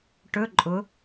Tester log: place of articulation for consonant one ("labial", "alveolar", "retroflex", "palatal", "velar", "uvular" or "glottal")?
retroflex